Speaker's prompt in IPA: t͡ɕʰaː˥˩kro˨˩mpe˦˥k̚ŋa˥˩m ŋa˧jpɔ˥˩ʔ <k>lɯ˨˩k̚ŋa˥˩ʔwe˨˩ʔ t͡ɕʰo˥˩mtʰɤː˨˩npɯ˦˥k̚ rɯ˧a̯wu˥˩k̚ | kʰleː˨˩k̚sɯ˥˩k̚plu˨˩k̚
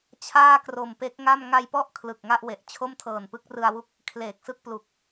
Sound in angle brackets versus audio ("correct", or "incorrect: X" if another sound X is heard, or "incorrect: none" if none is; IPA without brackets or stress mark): incorrect: kʰ